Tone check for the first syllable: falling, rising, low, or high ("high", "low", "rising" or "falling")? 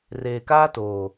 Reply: low